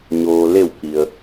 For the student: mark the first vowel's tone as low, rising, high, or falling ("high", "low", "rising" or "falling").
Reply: low